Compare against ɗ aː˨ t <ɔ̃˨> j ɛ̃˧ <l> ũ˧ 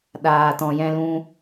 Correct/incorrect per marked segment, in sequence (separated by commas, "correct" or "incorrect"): correct, correct